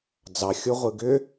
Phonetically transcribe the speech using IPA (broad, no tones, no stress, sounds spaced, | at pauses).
d͡z ɑ xʲ o ʁʷ ɯ ɡ ʏ